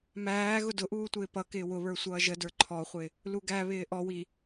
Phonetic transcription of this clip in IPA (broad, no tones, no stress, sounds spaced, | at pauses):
m æː ɣ ʊ d ʊ ʔ uː tʷ ɪː p ʌ k ɪː w ʊ β ə˞ sʷ ʌː ʒ ə d ə˞ ǃʰ ɔ χʷ ɪ | l u ɡ æ β ɪː ʔ ɔ w i